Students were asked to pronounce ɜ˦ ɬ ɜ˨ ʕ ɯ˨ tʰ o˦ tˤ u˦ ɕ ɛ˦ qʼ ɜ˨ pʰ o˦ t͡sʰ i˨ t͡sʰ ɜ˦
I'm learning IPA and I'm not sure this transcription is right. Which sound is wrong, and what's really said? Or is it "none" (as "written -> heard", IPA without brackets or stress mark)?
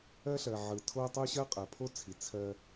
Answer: ɛ˦ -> ɜ˦